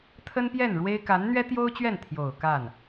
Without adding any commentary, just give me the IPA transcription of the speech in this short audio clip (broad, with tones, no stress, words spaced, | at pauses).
t̪ʰə˥npjɛ˥˩nɻwe˥ɪ̯ ka˧˥nn̪ɥɛ˥t̪jo˥ʊ̯ t͡ɕɥɛ˥˩nt̪ʰjo˨˩ʊ̯ ka˥˩n